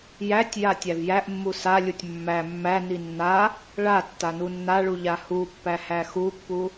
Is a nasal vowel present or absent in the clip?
absent